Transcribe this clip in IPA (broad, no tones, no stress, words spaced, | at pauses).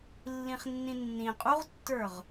lːĩχnːĩnːĩ qʼuʁtːə˞ʁ